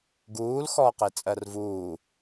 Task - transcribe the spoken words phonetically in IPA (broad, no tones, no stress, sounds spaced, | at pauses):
ɡ uː l x ɔː q e t͡sʼ ɜ r v uː